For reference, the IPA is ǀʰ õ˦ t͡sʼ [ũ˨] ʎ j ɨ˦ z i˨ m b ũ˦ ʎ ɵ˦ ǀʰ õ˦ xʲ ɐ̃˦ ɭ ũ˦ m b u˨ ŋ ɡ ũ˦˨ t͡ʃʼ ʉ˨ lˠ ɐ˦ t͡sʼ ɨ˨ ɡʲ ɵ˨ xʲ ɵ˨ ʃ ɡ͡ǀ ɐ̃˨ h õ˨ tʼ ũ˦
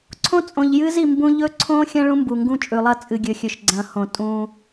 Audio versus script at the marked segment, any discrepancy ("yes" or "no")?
yes